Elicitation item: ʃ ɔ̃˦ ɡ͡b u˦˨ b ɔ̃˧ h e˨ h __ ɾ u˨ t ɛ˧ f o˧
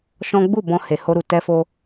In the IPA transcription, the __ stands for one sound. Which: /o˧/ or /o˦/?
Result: o˧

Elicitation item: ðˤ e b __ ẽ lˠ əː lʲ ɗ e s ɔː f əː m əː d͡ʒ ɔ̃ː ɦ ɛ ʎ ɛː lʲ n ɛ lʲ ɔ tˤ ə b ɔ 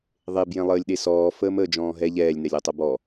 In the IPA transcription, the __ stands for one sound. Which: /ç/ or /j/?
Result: j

